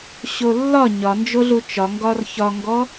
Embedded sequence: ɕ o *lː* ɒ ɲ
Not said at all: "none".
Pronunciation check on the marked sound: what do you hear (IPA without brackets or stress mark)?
lː